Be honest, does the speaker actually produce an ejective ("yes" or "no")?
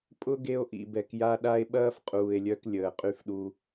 yes